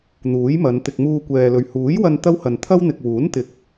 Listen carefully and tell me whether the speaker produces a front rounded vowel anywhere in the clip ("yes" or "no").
no